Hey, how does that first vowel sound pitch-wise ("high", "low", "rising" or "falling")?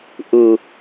low